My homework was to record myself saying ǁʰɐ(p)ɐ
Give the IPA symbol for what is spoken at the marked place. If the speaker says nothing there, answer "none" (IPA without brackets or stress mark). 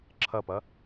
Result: p